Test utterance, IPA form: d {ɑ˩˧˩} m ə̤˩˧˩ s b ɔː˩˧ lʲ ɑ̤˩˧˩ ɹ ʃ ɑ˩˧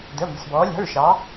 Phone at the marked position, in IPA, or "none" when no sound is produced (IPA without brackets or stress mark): ə˩˧˩